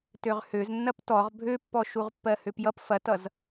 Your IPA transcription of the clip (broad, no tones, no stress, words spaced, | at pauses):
tøʁhøz nːɐptɔʁ bʱøpːɔ ʃuʁpːɜhøpjʌp fɐtʌz